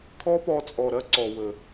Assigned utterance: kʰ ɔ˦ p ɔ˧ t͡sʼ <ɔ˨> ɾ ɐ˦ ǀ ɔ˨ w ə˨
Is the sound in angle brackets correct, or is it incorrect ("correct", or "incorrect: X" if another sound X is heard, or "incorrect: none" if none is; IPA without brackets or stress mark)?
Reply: correct